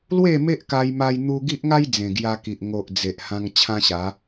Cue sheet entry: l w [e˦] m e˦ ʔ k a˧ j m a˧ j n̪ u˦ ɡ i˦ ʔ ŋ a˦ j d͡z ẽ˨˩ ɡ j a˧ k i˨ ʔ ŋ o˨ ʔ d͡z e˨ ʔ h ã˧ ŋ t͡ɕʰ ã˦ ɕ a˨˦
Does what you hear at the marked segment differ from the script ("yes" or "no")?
yes